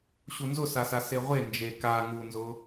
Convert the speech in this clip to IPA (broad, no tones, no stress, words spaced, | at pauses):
ɕunzʊsasa seʁʷe nd͡ʒe ka ŋunzʊ